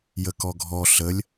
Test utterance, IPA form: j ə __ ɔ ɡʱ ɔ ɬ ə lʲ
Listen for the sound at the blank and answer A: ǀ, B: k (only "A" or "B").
B